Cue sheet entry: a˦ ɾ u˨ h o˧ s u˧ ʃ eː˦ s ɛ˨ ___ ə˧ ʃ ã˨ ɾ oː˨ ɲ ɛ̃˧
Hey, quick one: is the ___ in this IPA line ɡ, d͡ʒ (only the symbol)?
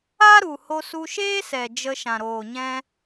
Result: d͡ʒ